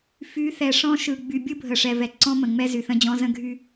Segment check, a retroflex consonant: present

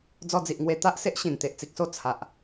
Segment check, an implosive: absent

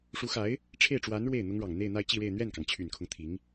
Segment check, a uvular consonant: absent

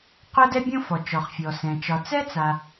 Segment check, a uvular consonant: present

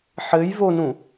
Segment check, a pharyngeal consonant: present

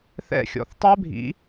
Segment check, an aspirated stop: absent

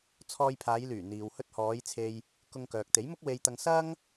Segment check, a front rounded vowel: present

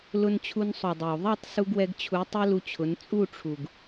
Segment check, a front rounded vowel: absent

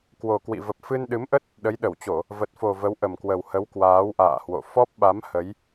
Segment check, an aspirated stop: absent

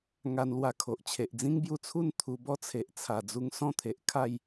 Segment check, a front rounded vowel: absent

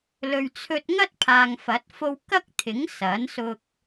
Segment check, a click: absent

